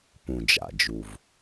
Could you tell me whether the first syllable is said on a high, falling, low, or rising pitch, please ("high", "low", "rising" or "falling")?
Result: low